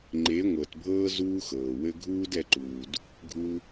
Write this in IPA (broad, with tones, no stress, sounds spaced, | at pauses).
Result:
ŋ͡ǃ e˨˦ ŋʷ ɤ˨ t bʱ ɤː˦ z uː˦ x ɤː˨ w ɘ˦ ɡʱ uː˦ d ɛ˧ ǃ uː˨ d | ɡʱ u˧